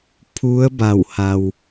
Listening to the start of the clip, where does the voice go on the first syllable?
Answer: rising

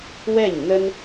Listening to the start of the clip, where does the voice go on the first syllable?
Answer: falling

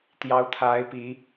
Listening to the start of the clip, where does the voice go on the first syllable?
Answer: rising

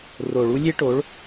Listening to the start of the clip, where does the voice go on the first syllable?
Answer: low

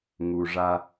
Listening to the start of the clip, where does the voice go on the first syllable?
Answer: low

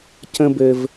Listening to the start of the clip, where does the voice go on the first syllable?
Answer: high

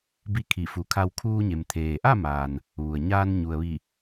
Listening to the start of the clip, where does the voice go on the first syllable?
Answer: rising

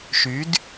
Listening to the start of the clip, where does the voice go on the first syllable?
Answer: rising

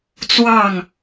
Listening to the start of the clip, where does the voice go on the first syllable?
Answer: falling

